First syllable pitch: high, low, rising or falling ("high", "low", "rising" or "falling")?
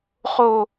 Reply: low